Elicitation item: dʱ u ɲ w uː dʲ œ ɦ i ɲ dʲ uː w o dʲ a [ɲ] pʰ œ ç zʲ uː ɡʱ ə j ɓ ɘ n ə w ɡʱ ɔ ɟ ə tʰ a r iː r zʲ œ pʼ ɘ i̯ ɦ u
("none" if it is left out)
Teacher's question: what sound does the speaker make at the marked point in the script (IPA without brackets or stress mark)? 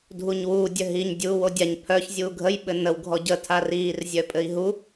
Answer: ɲ